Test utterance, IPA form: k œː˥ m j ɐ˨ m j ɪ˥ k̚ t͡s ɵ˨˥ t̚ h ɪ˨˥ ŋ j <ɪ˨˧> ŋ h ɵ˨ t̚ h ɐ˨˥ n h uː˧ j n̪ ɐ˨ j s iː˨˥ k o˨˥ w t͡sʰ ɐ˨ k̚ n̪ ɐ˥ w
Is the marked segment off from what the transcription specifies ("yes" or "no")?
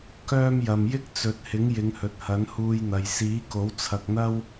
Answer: no